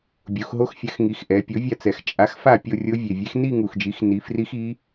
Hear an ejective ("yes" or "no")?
yes